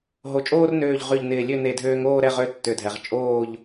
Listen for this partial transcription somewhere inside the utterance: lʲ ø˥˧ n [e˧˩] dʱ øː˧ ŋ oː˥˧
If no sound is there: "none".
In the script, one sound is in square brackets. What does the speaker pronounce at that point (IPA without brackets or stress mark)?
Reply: e˧˩